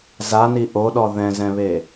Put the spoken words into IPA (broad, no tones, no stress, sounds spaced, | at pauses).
z a n i ʔ o ɗ ɔ ð ɛ̃ z ɛ̃ β e